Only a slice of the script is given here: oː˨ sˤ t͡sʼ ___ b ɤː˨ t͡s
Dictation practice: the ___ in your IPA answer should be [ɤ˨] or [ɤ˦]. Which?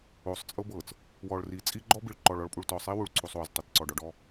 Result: ɤ˦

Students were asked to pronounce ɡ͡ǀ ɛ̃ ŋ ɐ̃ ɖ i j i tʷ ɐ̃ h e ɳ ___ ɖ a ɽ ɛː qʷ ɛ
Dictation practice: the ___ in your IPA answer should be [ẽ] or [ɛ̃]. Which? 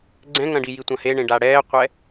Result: ẽ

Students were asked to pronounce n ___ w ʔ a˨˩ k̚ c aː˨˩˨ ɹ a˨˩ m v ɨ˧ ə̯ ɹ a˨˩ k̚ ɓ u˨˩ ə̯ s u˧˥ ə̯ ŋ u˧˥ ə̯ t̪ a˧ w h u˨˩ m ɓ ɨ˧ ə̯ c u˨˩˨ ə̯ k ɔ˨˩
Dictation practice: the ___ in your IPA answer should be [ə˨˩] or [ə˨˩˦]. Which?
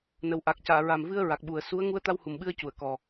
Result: ə˨˩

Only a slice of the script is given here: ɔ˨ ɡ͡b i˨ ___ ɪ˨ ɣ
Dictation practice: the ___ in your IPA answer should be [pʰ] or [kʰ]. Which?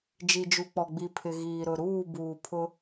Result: pʰ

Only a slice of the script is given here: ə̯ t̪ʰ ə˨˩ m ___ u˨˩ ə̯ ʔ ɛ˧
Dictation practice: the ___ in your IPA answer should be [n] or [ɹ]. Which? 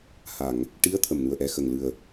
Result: n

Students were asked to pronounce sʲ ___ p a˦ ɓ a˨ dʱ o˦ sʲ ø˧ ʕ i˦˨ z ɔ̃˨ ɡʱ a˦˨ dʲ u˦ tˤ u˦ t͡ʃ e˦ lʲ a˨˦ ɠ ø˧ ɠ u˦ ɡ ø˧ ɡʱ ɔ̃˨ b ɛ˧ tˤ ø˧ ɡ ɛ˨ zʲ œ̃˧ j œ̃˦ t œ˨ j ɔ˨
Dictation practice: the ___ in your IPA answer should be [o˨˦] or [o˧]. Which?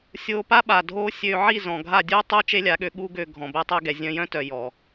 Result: o˧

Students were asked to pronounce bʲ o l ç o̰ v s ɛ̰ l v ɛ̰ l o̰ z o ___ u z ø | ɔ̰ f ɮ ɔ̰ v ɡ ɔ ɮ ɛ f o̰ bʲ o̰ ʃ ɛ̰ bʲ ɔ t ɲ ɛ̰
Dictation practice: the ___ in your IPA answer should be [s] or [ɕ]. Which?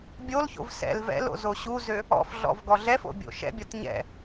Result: ɕ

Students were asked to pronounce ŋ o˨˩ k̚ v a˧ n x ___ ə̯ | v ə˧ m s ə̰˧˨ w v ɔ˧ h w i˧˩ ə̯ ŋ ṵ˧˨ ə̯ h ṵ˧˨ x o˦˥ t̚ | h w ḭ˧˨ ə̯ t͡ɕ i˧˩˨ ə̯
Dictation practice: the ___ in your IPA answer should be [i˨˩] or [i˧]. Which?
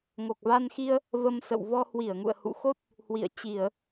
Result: i˧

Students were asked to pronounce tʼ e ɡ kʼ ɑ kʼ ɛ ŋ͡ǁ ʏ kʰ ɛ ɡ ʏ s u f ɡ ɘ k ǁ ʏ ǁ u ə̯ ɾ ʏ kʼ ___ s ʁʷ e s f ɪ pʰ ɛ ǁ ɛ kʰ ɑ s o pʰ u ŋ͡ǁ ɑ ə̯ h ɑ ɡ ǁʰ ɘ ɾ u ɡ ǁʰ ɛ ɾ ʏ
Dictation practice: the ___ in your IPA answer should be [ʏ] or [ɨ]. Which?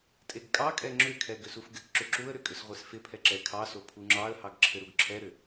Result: ʏ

